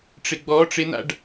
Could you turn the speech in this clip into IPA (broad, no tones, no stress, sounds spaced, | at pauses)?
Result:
ʈ͡ʂ ɪ ɡ͡b ɔ ʈ͡ʂ ɪ n̪ a̰ ɖ